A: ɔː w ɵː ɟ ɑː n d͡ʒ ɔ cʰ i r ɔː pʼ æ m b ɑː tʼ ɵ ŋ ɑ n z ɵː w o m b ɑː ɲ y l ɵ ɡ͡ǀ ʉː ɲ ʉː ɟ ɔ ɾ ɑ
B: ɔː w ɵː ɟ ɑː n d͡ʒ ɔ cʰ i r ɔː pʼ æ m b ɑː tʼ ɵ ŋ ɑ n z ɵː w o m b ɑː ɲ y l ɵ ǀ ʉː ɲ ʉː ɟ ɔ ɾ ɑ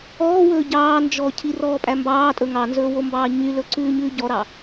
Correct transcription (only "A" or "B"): B